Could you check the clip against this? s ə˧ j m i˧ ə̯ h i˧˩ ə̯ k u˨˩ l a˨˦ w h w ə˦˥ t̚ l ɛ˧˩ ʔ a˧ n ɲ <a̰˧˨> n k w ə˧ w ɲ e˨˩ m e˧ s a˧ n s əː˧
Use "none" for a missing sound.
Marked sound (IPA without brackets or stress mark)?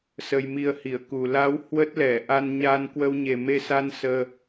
a˧